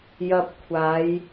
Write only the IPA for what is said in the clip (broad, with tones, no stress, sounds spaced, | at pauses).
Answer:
j ɐ˧ p̚ kʷʰ aː˨˧ j